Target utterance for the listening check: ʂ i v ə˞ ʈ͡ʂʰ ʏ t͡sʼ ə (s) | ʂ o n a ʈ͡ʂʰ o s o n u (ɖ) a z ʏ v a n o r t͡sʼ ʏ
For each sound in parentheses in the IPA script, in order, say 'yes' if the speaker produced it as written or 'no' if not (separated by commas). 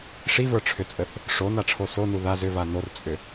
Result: no, no